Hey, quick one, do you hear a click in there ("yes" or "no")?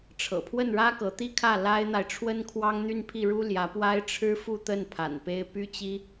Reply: no